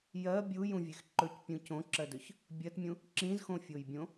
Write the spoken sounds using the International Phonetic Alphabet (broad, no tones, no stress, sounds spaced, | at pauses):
j ɜ bʲ u j ũ vʲ e x ǃ ɵ c pʲ ũ c õ ǁ ɜ d ɵ ç | bʲ ɜ t mʲ ũ | ǁ ĩ z x õ fʲ o j bʲ õ